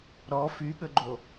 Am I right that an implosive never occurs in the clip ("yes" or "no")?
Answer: no